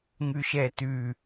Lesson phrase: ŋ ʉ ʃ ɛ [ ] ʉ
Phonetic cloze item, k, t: t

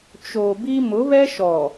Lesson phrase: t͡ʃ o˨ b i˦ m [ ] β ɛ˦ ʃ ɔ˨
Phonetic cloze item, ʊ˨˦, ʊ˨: ʊ˨˦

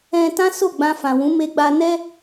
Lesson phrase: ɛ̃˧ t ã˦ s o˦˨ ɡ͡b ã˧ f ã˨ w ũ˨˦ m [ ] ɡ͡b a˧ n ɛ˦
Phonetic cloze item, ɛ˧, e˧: e˧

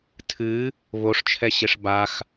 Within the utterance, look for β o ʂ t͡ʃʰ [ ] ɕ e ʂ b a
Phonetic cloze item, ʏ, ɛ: ɛ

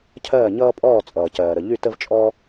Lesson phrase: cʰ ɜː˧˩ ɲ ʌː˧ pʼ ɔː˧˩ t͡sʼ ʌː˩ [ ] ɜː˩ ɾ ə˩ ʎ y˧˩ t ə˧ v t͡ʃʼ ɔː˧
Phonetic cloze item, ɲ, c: c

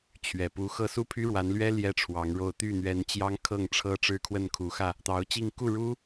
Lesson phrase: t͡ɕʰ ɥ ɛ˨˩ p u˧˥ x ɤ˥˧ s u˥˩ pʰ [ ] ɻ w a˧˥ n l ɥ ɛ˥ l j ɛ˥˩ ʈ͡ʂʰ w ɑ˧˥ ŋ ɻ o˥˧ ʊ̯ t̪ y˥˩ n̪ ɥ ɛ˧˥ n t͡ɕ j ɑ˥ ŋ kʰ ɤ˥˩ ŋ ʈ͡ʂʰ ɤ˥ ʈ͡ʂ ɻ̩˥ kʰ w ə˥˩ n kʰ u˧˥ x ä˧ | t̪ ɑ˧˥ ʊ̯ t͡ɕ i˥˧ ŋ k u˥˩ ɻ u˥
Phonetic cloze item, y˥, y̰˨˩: y˥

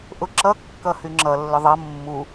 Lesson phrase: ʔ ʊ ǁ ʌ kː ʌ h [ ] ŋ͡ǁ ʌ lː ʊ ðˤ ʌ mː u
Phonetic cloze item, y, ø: y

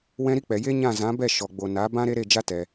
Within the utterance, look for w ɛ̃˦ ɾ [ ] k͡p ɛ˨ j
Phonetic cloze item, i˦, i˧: i˦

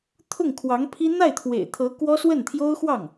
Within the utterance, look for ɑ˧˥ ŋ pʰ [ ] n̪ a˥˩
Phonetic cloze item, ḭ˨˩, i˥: i˥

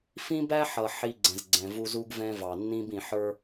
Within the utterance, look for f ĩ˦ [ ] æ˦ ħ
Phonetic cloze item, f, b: b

